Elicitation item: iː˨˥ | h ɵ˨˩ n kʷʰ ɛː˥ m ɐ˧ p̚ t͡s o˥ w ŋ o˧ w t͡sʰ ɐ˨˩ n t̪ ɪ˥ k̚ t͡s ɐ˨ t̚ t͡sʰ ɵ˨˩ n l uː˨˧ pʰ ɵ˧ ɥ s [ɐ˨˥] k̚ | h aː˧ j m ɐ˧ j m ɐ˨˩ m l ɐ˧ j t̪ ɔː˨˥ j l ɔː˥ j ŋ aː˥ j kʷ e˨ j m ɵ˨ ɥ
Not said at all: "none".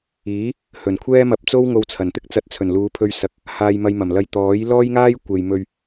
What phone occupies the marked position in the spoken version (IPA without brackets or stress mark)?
ɐ˨˥